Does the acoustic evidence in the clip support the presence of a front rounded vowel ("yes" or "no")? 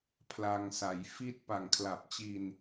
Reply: no